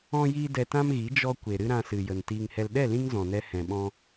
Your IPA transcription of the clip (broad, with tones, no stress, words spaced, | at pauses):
ɔ̃˧ jiː˦dɛ˧tã˦mɣi˨˦ d͡ʒɔ˧ kʷe˨ɾɨ˦ɾã˧ sɨ˨jə˨n tiː˨ŋhɛ˨lɗɛ˦˨ lĩ˦ŋzɔ̃˨nɛ˧ hɛ̃˨ɓɔ̃˧